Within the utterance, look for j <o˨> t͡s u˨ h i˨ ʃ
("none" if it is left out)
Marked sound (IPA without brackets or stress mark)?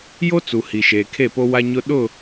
o˦